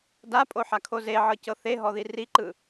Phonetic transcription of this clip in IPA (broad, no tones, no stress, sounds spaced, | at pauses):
d a pʼ o ħ a kʰ o z e ʕ ɤ c ɤ θ e ɦ ɔ ð i r i ǃ ɯ